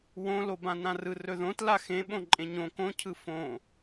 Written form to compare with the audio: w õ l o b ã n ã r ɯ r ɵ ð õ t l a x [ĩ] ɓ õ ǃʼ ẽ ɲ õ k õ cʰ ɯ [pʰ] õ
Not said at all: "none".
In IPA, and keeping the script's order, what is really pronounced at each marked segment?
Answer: ẽ, f

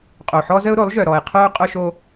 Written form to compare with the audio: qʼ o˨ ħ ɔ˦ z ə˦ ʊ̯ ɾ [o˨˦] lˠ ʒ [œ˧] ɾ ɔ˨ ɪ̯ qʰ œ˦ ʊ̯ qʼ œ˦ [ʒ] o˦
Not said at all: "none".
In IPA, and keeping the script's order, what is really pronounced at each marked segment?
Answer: o˨˦, œ˨, ʃ

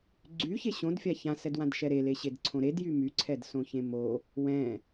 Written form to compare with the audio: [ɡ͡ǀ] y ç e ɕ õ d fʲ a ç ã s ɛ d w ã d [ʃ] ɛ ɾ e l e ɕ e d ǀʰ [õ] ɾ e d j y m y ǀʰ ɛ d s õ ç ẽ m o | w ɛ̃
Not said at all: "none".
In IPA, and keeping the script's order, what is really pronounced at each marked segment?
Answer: ɡ͡ǀ, ʃ, õ

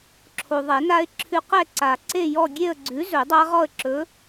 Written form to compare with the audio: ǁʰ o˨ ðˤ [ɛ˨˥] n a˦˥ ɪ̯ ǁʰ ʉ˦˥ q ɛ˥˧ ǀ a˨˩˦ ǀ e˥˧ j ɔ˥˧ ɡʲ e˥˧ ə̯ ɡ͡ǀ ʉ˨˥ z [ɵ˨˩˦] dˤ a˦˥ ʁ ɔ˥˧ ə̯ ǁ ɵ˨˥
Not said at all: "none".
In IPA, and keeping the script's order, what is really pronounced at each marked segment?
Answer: ɛ˨˩˦, ɵ˨˩˦

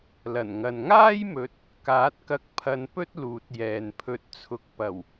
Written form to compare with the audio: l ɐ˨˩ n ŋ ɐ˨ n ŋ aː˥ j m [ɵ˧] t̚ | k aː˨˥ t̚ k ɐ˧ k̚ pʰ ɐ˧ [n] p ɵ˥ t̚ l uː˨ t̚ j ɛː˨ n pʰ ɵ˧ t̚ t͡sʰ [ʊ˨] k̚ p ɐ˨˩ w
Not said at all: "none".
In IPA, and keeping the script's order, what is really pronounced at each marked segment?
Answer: ɵ˨˥, n, ʊ˨

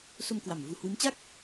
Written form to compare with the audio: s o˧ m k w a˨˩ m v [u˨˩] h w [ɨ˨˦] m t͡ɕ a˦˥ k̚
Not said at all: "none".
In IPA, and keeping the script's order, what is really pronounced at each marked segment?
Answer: u˧, ɨ˨˦

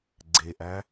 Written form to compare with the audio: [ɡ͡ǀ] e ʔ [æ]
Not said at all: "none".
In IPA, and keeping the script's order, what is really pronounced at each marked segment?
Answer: ɡ͡ǀ, æ

